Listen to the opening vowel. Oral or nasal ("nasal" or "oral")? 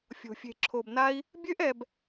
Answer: oral